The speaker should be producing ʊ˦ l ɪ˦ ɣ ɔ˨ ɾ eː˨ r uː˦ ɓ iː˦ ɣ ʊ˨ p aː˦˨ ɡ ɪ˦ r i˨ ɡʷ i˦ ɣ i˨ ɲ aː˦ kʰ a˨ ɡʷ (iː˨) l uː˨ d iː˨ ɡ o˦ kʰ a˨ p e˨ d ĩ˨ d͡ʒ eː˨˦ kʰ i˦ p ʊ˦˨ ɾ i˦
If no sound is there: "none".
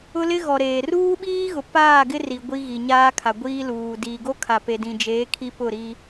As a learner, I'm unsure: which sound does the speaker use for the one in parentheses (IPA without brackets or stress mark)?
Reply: iː˦